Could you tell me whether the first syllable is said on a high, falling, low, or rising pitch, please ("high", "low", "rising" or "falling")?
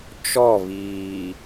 falling